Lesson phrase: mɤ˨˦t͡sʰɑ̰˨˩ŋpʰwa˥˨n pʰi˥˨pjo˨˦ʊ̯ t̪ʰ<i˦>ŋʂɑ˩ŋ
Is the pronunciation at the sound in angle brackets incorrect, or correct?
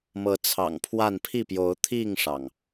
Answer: incorrect